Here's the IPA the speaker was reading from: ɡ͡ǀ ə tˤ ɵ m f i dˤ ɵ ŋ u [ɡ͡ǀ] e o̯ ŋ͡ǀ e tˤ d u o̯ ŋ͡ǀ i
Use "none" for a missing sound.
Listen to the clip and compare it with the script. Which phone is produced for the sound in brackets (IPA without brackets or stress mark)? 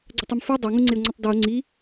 ŋ͡ǀ